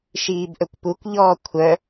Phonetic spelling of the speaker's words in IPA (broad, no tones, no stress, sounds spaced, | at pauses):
ʃ iː b ʔ ɵ kʷ p u kʷ ʎ ɔː kʷʰ œ